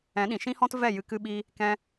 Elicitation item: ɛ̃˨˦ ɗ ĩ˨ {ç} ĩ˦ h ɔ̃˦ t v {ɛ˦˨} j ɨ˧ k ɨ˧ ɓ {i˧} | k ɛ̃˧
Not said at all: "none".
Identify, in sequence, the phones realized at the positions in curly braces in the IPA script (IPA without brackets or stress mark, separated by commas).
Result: ʃ, ɛ˦˨, i˧